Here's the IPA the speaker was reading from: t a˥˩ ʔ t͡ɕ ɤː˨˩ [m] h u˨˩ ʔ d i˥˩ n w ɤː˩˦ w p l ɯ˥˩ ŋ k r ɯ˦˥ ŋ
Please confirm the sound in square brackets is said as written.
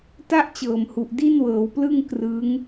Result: yes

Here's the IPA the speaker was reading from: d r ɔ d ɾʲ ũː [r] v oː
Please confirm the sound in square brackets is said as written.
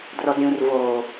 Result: yes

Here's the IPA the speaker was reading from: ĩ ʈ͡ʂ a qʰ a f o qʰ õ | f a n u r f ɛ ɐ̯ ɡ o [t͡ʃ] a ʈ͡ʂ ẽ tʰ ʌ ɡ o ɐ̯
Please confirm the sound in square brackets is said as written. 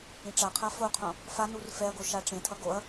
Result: no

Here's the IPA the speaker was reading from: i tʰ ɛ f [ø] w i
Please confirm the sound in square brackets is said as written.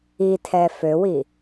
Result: yes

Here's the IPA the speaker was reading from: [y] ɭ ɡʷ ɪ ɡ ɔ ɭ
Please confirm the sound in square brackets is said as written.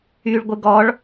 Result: yes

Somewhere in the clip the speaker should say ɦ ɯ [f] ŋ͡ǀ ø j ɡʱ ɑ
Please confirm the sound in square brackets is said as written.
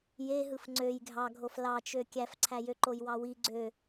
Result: yes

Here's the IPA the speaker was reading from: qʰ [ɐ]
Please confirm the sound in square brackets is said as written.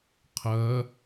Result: yes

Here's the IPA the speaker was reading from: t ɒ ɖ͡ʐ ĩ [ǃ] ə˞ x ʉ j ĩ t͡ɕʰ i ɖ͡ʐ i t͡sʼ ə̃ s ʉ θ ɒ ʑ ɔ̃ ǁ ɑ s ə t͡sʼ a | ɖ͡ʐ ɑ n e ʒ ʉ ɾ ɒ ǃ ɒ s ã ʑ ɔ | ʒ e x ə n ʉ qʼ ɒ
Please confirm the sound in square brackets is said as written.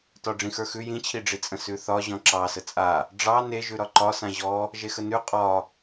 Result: no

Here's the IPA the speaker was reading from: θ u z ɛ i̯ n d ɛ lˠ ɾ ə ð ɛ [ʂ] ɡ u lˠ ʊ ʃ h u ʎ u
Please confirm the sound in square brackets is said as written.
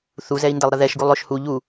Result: no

